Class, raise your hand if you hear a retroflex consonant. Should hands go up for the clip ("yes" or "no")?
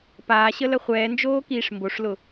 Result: yes